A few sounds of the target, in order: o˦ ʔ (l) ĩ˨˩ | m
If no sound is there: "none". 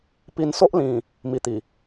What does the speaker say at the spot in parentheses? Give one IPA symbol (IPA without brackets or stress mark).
l